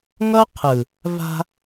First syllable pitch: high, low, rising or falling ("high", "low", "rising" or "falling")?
high